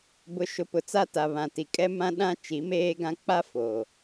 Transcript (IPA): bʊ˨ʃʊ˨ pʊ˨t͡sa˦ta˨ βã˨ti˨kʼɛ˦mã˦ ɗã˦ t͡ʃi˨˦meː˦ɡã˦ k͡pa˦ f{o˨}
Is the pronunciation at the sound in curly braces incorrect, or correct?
correct